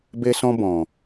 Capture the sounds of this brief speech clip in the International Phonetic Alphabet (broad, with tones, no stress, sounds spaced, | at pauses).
b e˦ s ɔ̃˦ b ɔ̃˨